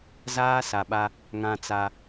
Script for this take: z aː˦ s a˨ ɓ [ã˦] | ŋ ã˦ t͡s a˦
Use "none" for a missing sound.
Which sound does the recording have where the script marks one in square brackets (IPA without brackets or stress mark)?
a˦